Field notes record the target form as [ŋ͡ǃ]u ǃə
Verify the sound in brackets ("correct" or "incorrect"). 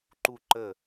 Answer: incorrect